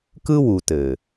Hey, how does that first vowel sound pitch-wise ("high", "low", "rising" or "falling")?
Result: high